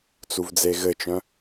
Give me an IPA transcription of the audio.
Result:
t͡s u v d͡z e ɣ ɘ t͡ʃ œ̃

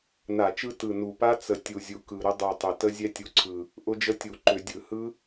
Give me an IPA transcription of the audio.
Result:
n a˧˩˧ t͡ʃ ɯ˦˥ t ɯ˨˩ n u˨˩ p a˦˥ t͡s ə˨˩ tʲ u˨˩ zʲ u˨˩ k ɯ˨˩ ɾ ʊ˦˥ dˤ u˨˩ tˤ ʏ˨˩ t ə˦˥ zʲ ɛ˦˥ tʲ u˨˩ ǀʰ ɯ˨˩ | ʔ ʊ˦˥ d͡ʒ ə˦˥ tʲ u˧˩˧ ǃ ʏ˧˩˧ dʲ ɯ˧˩˧ h ɯ˦˥

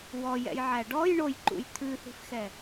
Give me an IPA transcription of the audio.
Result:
w ɔ j ɛ̰ j ʕ æ ɖ ɔ j ɳ o j ǃ ṵ j t̪ʰ ʉ θ i̤ f x ɛ

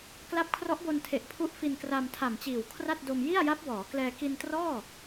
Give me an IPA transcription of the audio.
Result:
k l a˦˥ p̚ kʰ r ɔ˦˥ ʔ b o˧ n tʰ e˨˩ ʔ pʰ u˦˥ ʔ f i˧ n k r a˧ m tʰ a˨˩ m t͡ɕ iː˨˩ w kʰ r a˥˩ t̚ d o˧ m j i˥˩ a̯ j a˦˥ p̚ w ɔː˩˦ k l ɛː˧ k i˧ n t r ɔː˥˩

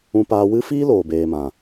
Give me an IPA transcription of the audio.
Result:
ũ˧ p aː˧ w ɨ˦ f iː˦ l oː˨ b eː˨ m ã˨

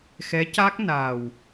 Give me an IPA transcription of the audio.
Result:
x ɛ˧˥ c a˦˥ k̚ n a˨˩ w

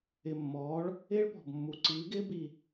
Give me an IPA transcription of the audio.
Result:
ɪ˨˩ mː ɔː˩˥ ɭ | ɪː˥ ɭ p ɔ̤˨˩ b mː u˨˩ ǀ iː˩˥ ɡ ɪː˥ b i˨˩

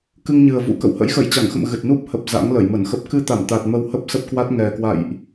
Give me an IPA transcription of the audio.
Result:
k ɨ˧ ŋ ɲ ɨ˨˩ ə̯ v ṵ˧˥ k ə̰˧˨ w h ə̰˧˥ j x ə˧˩ j t͡ɕ a˧˩ ŋ x ə̰˧˨ m ɣ ɨ˨˩ t̚ n u˦˥ p̚ h ə˨˩ p̚ z a̰˧˥ ŋ l ə˧˩ j m ə˧˩ n x ə˦˥ p̚ k ɨ˧ t̪ a˧˩ m t̪ a˨˩ t̚ m ə˧ w h ə˦˥ p̚ s ə˦˥ p̚ k w a˦˥ t̚ ŋ ɛ˨˩ k w a̰˧˨ j ʔ

